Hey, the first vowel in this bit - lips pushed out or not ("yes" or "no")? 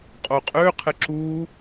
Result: yes